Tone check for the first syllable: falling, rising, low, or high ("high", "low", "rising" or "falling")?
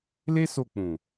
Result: high